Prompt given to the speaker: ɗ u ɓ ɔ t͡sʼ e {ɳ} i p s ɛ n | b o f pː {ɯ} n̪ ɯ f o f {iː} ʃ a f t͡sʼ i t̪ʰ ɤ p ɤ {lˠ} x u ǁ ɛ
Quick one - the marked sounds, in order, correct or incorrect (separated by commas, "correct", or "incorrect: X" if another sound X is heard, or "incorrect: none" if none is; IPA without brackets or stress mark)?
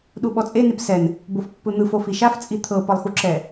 incorrect: n, correct, incorrect: i, correct